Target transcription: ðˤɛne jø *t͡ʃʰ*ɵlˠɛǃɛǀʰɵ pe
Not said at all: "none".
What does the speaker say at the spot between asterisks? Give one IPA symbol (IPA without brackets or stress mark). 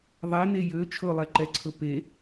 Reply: t͡ʃʰ